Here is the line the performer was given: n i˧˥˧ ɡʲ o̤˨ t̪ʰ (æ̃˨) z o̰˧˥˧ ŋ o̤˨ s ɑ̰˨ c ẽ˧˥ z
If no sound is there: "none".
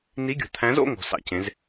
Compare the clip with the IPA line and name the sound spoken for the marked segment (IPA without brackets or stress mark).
æ̃˧˥